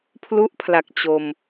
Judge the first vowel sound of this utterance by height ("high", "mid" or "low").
high